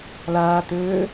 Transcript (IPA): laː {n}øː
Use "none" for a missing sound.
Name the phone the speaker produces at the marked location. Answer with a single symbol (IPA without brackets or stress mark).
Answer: t̪